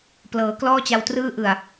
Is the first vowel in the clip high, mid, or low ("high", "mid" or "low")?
mid